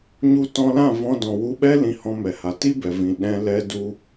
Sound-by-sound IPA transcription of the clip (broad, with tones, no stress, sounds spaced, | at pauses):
ɲ u˧ t ɔ̃˧ l ã˦˨ v ɔ̃˧ d ɔ̃˨ w u˧ ɓ ɛ˦ l ĩ˧ h ɔ̃˧ m ɛ˨ h a˨ t i˦ b ɛ˨ v ĩ˨ ɗ ɛ̃˧ l ɛ˧ d u˦